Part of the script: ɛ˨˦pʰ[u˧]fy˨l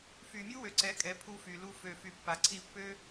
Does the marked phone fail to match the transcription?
no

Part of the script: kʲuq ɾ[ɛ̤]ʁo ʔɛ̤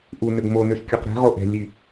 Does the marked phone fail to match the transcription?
no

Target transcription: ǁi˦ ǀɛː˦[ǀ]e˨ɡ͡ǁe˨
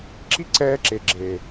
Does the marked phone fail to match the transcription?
yes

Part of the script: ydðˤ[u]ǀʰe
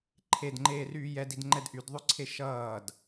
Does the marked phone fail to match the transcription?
yes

